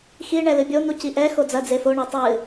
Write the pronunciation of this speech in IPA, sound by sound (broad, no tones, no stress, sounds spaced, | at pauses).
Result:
x i ɳ ɛ l ɨ bʲ o n̪ u c i ʔ ɛ x o d͡z ɐ d͡z e f o ɳ ɛ tˤ ɨ